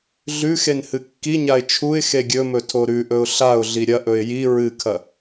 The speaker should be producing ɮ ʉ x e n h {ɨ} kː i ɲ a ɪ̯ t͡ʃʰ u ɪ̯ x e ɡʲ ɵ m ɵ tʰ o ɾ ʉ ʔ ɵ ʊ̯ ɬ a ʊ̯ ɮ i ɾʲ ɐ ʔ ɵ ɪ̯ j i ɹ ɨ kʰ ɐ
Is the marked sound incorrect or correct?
correct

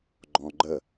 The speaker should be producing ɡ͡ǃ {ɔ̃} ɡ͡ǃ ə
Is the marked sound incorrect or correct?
correct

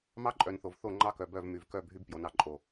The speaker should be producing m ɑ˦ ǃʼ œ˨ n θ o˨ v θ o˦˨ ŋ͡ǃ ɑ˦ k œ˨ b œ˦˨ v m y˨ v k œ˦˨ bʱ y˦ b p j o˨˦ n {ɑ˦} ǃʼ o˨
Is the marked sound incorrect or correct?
incorrect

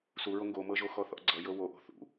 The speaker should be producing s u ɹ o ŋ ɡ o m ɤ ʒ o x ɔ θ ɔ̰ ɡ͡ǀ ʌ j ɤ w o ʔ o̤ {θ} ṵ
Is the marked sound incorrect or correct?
correct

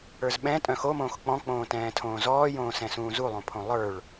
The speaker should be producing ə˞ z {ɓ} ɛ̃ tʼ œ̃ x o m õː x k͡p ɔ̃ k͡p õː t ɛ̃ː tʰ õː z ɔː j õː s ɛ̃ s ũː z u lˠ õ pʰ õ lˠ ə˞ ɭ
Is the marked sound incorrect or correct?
correct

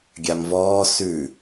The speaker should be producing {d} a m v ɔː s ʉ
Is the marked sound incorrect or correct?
incorrect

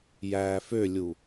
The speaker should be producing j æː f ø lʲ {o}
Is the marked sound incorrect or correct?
incorrect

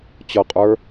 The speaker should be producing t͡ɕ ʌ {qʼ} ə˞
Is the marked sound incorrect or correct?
correct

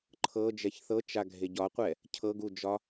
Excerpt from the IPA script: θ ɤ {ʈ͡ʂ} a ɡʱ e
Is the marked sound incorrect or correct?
incorrect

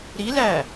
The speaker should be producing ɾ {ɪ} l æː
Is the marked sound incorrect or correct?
incorrect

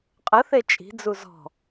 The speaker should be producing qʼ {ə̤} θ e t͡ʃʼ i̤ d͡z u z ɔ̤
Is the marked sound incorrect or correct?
incorrect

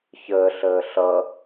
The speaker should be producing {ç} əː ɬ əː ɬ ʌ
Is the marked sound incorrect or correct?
correct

